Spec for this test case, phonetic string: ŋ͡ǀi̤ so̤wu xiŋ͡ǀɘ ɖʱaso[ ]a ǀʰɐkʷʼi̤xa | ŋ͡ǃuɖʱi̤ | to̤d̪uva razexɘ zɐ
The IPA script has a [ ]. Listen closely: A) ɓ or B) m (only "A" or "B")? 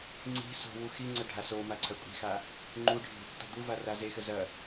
B